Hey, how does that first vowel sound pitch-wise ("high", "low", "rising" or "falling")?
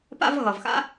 high